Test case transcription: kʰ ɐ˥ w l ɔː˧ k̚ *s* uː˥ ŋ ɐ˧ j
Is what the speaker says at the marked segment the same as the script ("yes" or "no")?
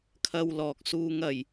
yes